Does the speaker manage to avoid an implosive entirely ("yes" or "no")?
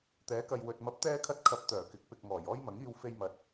yes